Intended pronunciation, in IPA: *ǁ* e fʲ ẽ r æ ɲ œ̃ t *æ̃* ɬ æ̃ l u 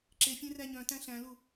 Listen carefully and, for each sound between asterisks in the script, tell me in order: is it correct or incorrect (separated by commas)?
correct, correct